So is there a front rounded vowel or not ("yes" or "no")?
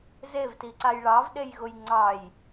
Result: no